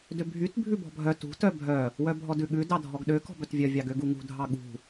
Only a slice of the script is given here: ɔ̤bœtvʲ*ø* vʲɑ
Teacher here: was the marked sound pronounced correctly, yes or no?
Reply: no